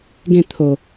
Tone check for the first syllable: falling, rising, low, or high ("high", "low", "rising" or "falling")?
falling